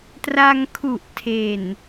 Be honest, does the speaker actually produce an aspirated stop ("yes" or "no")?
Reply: yes